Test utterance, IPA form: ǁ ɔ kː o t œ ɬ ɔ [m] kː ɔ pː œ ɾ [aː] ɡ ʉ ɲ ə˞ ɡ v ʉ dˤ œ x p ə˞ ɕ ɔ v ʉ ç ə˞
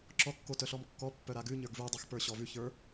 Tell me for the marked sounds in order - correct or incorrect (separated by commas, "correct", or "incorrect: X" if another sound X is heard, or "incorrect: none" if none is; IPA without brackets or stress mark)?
correct, incorrect: a